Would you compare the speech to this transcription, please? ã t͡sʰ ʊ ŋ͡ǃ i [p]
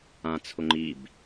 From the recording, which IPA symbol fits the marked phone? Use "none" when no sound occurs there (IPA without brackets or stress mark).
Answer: b